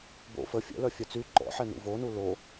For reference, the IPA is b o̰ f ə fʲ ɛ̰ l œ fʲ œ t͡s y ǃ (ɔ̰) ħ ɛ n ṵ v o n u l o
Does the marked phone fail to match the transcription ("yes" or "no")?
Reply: no